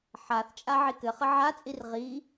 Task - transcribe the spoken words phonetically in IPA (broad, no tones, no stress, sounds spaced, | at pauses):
ħ a θ t͡ʃʼ a ʕ i k ɘ χ ə ʕ a t͡sʼ i r ʁ i